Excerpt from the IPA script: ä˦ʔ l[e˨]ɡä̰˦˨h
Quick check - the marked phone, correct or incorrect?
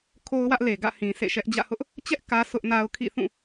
correct